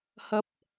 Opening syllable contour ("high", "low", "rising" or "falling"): rising